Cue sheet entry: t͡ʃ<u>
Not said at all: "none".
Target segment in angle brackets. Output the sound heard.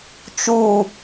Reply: u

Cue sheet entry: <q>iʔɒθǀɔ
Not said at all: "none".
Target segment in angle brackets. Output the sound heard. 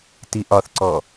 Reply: t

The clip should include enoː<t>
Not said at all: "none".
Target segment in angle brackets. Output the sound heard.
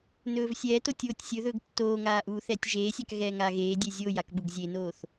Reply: θ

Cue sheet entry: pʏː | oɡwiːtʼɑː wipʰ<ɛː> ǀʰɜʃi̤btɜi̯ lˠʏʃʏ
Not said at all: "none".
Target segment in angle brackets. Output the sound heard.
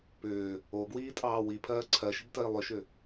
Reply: ɜː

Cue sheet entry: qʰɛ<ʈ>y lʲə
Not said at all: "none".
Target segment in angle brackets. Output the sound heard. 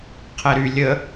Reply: ɾ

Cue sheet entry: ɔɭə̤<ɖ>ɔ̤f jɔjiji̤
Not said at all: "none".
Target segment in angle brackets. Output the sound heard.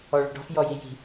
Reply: ɖ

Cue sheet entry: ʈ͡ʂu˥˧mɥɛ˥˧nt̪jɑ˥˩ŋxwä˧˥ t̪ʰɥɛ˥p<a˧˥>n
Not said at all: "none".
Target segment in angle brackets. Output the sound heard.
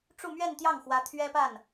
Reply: a˥˩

